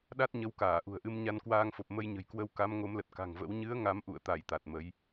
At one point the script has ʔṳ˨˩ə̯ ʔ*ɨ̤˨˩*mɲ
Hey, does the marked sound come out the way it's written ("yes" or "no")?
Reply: no